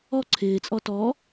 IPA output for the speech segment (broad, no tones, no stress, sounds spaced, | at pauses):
ɔ ǀʰ ɪː t͡sʼ ɔ t ɔ